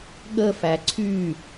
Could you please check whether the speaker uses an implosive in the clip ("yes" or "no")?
yes